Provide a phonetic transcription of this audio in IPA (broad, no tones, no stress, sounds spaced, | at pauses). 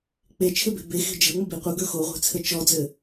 k͡p e t͡ʃʰ ɘ b e̤ b e x e̤ d͡ʒ ə̤ ʊ̯ ŋ͡m ə b i qʷ ɘ ɡ ə˞ x o ʁʷ e̤ t͡sʰ ə t͡ʃ ɔ d͡z ɘ